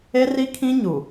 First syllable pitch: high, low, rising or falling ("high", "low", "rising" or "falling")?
high